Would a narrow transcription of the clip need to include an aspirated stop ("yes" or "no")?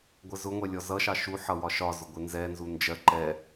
no